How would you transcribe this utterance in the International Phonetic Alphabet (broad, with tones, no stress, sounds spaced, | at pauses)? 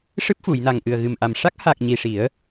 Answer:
ʂ ɨ˦˥ p̚ f u˨˩˨ j n a˨˩ ŋ ʔ ɨ˨˩ ə̯ ɣ ɨ˨˩ m ʔ a˨˩ m ʂ a˦˥ k̚ h a˨˩ k̚ ɲ i˨˩ ʂ i˨˩˦ ə̯